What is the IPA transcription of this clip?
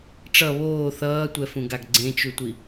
ʈ͡ʂ ʌ β oː θ ʌː tʷ ɛ f ũ ɡ a ɡ ɡ͡ǀ ẽ t͡ʃ u tʷ i

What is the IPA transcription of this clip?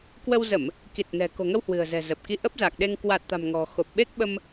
k w ə˧ w z ə˧˩˨ m | k i˨˩ t̚ n ɛ̤˨˩ k o̤˨˩ ŋ ə˧ w h w ɨ̤˨˩ ə̯ z ɛ̤˨˩ z ə˨˩ p̚ k i˧ ʔ ə˦˥ p̚ z a˨˩ k̚ ɗ e˧ ŋ k w a˨˩ t̚ t̪ a̤˨˩ m ŋ ɔ̤˨˩ x o˨˩ p̚ ɓ e˦˥ k̚ ɓ ə˧ m

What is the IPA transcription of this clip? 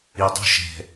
i dˤ ṳ ʃ ɛ̤

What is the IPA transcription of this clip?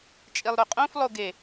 t͡ʃʼ i lˠ ɾ ɵ qʼ õ f lˠ o ɡ e

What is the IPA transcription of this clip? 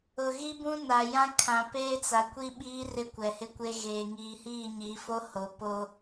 ʊ˨ ɣ i˦ b ũ˦ n a˨ j ã˦ kʰ ã˨ p eː˦ t͡s a˨ kʷ i˦ ɓ iː˦ r ɪ˦ kʷ ɛ˨ h ɪ˦ kʷ e˦ ɣ eː˨ ŋ iː˨ h iː˦˨ ɲ i˨˦ f o˦ h o˨ p o˦

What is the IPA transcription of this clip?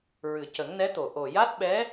ɹ ɨ˨˩ c ə˨˩˦ ŋ n ɛ˧˥ t̪ o˨˩ ʔ o˨˩ j a˦˥ t̚ ɓ ɛ˧˥

